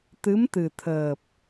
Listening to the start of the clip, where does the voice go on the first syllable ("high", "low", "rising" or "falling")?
rising